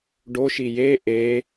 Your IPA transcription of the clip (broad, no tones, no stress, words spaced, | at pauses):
ɖoʃi je ʔe